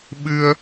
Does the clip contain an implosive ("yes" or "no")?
yes